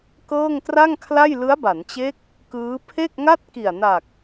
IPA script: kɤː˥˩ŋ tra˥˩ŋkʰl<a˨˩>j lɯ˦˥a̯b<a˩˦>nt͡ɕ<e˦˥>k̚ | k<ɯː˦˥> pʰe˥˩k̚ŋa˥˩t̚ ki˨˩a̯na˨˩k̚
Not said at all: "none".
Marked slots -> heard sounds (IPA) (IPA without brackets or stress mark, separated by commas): a˥˩, a˩˦, e˦˥, ɯː˦˥